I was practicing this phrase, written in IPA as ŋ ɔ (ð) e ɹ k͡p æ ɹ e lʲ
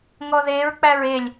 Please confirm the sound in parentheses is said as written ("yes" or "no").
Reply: yes